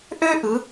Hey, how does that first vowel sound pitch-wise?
high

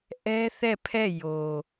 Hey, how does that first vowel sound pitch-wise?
high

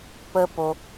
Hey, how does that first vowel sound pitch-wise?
high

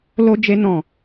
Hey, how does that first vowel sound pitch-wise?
high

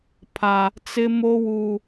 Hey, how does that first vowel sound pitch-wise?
high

